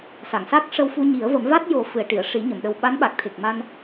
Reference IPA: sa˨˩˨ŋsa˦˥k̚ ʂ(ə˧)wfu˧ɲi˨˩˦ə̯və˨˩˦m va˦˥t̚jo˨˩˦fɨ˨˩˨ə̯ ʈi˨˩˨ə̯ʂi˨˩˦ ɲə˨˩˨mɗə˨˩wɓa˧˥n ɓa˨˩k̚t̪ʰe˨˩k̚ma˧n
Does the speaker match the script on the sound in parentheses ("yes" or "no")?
yes